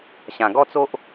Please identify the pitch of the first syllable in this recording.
low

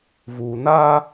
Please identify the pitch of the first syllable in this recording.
low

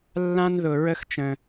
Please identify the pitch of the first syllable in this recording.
high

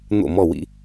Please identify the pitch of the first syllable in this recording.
falling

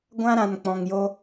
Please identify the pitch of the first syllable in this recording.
high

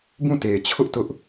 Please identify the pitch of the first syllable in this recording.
falling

